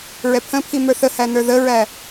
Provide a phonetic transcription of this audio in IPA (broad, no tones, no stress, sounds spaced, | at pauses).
ɹ ɛ pʰ ə̃ pʰ i m ə˞ θ ə h æ n ə˞ ð ə ɹ æ